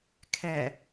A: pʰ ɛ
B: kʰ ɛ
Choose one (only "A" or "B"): B